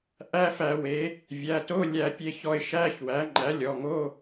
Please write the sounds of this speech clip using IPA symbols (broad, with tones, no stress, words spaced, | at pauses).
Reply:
ʔæ˧˥˧fæ˧˩˧we˩˥ | vʲæ˩˧˩to˧˥˧lʲæ˧˩˧pʲe˧ çɔ˧ɪ̯ʃæ˧˥˧çwæ˩˥ ŋ͡ǃæ˩˥lʲɔ˩˧˩ŋo˧˥˧